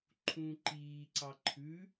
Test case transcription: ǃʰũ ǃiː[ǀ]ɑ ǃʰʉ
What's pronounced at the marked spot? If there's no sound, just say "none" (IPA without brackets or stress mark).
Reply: ǀ